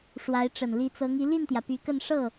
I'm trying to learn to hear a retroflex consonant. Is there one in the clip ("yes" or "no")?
yes